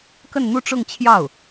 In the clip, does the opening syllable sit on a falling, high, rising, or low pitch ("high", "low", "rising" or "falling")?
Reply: falling